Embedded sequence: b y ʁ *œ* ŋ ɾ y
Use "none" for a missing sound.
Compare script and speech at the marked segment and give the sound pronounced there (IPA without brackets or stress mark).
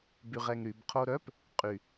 ɛ